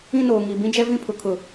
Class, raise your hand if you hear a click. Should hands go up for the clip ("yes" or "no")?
no